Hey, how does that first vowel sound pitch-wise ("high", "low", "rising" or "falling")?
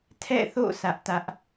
falling